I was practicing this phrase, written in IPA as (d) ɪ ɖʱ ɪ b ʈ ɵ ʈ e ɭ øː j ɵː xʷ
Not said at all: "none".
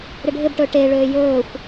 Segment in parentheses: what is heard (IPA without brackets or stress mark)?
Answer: ɾ